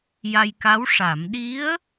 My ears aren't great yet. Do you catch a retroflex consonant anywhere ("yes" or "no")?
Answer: yes